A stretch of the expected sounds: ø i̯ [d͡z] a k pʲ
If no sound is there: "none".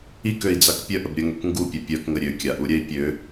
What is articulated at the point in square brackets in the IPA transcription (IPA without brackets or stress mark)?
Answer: d͡z